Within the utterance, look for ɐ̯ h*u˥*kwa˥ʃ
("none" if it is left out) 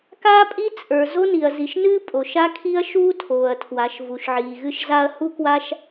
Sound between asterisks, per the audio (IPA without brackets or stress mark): u˥